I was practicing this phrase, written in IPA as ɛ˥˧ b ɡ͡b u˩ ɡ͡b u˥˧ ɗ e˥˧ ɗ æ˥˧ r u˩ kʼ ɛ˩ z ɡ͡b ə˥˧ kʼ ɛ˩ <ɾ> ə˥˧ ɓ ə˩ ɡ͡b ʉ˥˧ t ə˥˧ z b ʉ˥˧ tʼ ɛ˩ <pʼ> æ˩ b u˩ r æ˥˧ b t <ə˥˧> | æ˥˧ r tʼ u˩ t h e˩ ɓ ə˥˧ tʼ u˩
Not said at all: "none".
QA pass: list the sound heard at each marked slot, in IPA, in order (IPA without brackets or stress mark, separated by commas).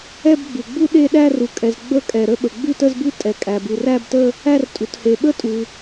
ɾ, kʼ, ə˥˧